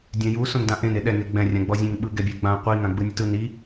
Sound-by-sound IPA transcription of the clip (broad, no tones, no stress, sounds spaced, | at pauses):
dʲ ɛ̃ j u s õ n d ã ʔ ẽ n e ɗ ɛ ŋ e ɡ͡b ɛ̃ rʲ ã ɡ͡b ɔ zʲ ẽ ŋ ɓ ɯ ɡ ɛ bʲ ɛ ɡ͡b ã qʷ i ŋ ã ɡ͡b ɯ nʲ u t ɯ n i